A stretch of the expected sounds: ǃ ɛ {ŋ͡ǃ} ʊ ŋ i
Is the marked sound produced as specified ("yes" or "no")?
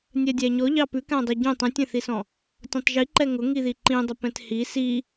no